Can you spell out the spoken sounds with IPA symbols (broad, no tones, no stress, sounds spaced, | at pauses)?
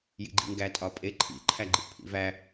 j ḭ ɡ͡ǃ ḭ ŋ ɡ æ tʼ ɒ pʼ e ǃʰ ḭ ǃʰ æ ɡ͡ǃ ḭ ʔ pʰ ḭ v æ